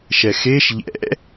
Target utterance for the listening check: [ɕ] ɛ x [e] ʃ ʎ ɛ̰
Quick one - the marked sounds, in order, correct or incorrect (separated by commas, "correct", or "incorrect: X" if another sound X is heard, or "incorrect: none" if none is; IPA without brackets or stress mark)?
incorrect: ʃ, correct